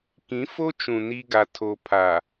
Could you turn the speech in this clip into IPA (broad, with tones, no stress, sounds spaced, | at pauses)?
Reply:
k ĩ˨˦ f o˦ t͡ʃ ũ˨ n i˦ ɡ a˦ tʰ o˦ pʰ a˨